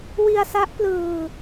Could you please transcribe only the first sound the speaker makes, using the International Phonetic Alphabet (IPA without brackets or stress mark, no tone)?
w